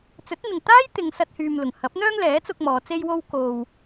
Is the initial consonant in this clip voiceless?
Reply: yes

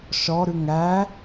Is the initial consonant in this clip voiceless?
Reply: yes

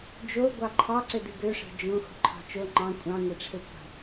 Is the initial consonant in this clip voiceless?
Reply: no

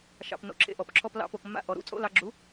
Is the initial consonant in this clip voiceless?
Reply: yes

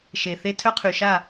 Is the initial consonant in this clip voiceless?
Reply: yes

